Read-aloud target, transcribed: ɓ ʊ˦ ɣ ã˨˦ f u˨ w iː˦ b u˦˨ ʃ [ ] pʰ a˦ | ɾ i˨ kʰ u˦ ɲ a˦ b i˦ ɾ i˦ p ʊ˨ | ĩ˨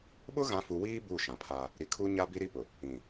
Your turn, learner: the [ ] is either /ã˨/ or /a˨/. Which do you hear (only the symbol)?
ã˨